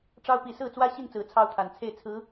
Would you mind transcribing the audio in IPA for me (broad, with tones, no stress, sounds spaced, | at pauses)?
ʈ͡ʂ ɑ˥ ʊ̯ p i˧˥ s ɹ̩˥˩ t͡s w ä˥ ɕ i˥˩ n t͡s ɹ̩˧˥ t͡sʰ ɑ˥˩ ʊ̯ t̪ʰ a˨˩ n t͡sʰ e˥˩ ɪ̯ t͡sʰ ɹ̩˧˥